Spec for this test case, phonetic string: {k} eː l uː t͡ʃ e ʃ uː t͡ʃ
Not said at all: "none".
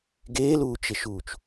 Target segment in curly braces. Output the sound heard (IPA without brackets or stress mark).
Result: ɡ